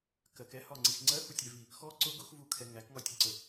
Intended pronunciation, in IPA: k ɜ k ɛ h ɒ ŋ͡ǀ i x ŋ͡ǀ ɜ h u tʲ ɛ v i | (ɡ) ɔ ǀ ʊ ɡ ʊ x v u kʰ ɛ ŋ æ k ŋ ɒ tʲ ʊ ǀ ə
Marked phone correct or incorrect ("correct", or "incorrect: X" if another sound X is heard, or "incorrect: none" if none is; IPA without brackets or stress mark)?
incorrect: x